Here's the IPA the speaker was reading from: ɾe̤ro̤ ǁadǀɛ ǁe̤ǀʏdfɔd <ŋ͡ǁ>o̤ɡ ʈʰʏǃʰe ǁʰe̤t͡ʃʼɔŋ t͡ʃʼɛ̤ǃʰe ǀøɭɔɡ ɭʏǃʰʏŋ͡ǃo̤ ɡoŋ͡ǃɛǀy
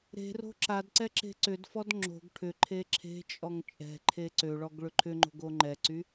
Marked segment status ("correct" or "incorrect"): correct